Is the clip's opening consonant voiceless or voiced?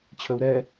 voiceless